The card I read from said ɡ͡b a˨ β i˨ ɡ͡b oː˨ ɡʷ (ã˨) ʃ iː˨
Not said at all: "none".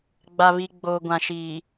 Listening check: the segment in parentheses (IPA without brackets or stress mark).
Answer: ã˨